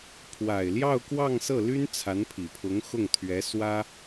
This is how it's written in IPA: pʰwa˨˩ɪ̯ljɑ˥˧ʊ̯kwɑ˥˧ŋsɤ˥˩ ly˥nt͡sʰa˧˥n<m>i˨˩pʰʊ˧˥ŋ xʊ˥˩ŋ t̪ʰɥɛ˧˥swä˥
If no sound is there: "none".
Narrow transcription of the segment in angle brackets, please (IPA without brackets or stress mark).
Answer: pʰ